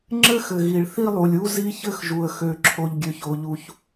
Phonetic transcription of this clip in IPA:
ŋ͡ǁ ɘ˥ x ɘ˩ ɣ i˩ ɭ θ i˥ lˠ u˩ lʲ u˥ z i˥ ç ɘ˥ x ʒ u˩ ə̯ x ø˩ ǁʰ o˩ ʎ ɡʲ ø˩ ç o˩ ʎ u˩ ç

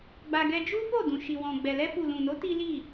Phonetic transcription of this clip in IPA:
ɡ͡b a˧ ɡ ɛ˧ d͡ʒ u˦ f o˦˨ d ũ˨ ʃ i˨ w ɔ̃˨ ɡ͡b ɛ˨ l ɛ˧ f u˨ l ũ˨ n o˨˦ t i˦ l i˦˨

